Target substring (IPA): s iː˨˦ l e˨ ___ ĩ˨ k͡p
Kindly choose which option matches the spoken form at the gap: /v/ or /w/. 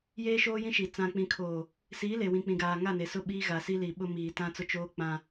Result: w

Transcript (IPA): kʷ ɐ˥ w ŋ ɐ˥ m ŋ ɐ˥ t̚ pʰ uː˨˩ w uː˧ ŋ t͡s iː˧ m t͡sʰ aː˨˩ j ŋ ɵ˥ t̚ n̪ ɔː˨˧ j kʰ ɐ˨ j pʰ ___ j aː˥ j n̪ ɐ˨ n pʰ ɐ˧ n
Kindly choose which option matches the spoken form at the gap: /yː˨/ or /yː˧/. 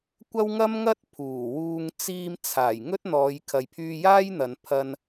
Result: yː˧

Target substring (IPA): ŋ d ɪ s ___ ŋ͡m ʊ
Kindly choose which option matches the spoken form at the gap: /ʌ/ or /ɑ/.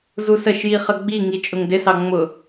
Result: ɑ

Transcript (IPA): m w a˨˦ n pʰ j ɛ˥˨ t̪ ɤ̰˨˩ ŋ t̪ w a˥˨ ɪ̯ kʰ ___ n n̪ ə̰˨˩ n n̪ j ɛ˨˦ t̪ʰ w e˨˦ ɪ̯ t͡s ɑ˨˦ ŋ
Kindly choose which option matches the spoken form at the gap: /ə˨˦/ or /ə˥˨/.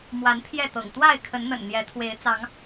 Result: ə˨˦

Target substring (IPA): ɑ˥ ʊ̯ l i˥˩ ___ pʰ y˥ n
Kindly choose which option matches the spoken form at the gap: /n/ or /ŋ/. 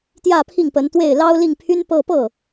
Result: ŋ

